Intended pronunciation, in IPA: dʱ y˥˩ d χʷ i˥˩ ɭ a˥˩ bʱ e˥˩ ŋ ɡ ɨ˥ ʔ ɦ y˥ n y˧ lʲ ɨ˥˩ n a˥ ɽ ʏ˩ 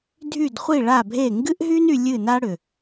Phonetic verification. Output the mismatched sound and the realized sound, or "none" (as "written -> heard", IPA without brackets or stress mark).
none